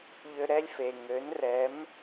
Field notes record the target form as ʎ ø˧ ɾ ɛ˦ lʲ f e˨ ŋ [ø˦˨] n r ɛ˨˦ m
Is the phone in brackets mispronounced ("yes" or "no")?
yes